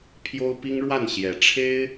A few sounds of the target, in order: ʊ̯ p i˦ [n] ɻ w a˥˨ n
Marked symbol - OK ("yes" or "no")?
no